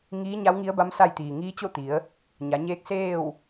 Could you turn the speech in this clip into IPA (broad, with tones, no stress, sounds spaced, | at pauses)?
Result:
ŋ iː˧˥ ɲ a˧˥ w ŋ i˧˥ ə̯ b a˧˥ m s a˥˨ j t̪ iː˩ ŋ iː˧˥ t͡ɕ o˥˨ t̪ i˩˧ ə̯ | ɲ a˩˧ ɲ eː˧˥ k̚ s eː˥˨ w